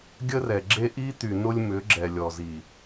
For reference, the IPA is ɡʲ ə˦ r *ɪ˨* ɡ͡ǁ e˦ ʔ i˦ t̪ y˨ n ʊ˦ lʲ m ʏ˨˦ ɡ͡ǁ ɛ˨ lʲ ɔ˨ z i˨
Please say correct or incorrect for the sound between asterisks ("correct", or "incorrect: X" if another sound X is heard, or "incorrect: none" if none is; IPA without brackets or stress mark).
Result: incorrect: ɛ˨